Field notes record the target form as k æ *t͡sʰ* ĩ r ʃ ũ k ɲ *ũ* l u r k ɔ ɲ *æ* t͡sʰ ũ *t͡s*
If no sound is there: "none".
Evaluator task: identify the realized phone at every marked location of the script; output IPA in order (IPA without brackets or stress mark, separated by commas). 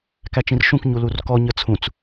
t͡ʃ, u, ə, t͡s